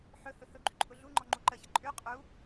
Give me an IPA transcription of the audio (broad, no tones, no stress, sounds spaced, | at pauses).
ħ ɵ h ɵ h ɵ ɡ͡ǃ ʉ ǃʼ ʊ ɮ u ŋ͡ǃ ɔ ŋ͡ǃ u ǃ ə ç ə ǃʼ ʉ qʼ u